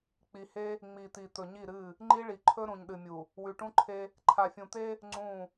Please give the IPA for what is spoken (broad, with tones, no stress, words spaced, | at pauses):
k͡pi˨he˦ | ŋ͡mi˨t̪i˨ t̪ɵ˨ɲi˦˨ɾɨ˦˨ | ŋ͡ǃi˦ɭi˨ǃʰɵ˦ ɾũ˨ɲɗɨ˨mʲu˨ | wʉ˨ʈũ˦ǃʰe˦ | ǃʰa˨fʲũ˨t̪e˦ | ŋ͡ǀũ˦˨